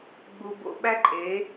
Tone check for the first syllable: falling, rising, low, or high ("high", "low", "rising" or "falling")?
low